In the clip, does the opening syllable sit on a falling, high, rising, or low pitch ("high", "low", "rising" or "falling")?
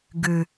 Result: low